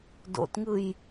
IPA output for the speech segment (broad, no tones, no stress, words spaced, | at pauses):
do̰tŋɯj